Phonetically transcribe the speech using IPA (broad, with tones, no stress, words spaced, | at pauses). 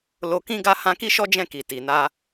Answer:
lo˧ kĩ˧ɡa˧hã˧ ki˦ʃɔ˦ d͡ʒɛ̃˦˨ki˨ ti˨na˧